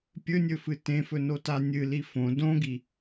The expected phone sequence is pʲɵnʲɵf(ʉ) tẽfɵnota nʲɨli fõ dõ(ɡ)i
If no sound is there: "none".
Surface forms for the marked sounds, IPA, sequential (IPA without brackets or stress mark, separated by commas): ɨ, ɡ